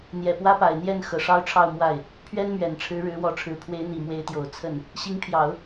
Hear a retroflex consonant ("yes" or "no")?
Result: yes